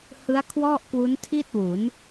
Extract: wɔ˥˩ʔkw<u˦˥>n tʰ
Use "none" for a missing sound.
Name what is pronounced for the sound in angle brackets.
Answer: u˦˥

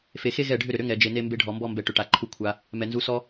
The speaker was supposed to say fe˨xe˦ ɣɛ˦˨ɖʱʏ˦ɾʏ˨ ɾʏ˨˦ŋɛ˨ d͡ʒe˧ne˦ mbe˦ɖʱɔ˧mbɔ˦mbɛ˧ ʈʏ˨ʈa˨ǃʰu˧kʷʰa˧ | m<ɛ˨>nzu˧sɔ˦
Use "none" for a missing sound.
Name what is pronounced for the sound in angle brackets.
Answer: ɛ˨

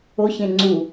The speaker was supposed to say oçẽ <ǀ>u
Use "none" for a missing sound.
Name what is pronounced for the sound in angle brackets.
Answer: ŋ͡ǀ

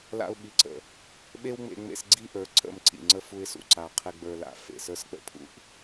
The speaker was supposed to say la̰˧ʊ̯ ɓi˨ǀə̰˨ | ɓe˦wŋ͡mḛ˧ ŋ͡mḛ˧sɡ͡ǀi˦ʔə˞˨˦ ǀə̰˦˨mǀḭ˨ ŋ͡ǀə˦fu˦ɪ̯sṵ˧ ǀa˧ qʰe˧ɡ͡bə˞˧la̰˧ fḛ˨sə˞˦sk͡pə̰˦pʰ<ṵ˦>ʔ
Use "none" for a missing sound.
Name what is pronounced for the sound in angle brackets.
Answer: ṵ˦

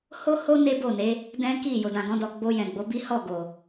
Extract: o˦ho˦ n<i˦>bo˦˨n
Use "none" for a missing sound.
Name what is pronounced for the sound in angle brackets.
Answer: e˦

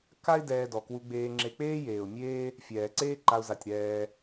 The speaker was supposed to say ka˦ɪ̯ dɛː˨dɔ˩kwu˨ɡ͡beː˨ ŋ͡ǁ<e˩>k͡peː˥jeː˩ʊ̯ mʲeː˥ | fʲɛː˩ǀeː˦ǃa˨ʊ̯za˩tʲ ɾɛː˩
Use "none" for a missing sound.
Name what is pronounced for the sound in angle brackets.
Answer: e˨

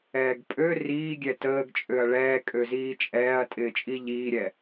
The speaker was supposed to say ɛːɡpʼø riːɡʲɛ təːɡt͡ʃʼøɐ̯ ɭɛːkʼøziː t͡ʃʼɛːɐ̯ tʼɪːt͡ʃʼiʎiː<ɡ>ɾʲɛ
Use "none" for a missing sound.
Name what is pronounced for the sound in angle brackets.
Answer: none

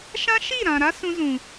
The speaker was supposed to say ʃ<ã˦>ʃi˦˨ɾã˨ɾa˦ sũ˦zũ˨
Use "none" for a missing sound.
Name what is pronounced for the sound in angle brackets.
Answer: ã˦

